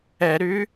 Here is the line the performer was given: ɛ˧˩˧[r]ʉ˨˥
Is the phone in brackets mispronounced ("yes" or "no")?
yes